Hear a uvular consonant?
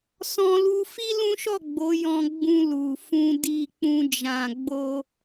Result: no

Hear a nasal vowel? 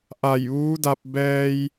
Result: no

